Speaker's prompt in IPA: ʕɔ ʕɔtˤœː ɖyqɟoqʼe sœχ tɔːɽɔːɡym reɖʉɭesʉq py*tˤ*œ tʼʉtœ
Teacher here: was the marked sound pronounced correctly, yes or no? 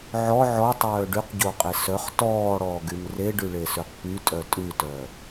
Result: no